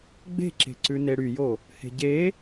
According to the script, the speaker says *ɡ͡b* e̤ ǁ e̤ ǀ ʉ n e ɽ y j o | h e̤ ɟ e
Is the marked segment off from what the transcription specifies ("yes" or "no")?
no